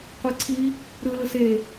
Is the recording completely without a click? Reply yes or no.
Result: no